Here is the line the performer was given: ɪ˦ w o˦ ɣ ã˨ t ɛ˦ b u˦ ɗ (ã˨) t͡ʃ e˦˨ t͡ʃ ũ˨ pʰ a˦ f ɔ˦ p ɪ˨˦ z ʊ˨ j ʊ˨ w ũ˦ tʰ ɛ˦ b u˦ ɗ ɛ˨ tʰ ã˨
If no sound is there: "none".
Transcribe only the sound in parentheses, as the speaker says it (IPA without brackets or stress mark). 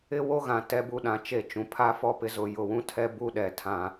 ã˨